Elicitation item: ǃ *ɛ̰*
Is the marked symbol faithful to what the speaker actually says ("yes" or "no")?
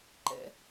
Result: yes